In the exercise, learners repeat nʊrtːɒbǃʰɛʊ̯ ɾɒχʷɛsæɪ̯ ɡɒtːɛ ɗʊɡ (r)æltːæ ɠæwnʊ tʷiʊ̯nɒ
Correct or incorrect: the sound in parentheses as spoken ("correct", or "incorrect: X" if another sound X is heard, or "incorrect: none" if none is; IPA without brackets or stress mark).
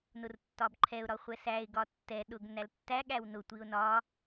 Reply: incorrect: n